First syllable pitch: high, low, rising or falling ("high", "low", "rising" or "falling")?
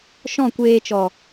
falling